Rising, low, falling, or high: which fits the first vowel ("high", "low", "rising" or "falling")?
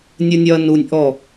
high